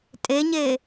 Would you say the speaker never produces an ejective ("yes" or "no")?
no